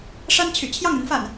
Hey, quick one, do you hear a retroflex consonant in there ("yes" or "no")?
yes